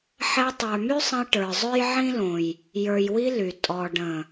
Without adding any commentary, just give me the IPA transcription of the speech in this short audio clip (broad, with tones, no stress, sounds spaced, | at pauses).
ħ ɛ˧ tˤ ə˞˨ m y˦ sˤ ə̃˧ j ʈ ə˞˨ zˤ ø˦ j ʕ ĩ˦ l õ˨ j | j ə˞˨ j w i˧ l y˨ tʼ ɔ˨ ɖ ə̃˨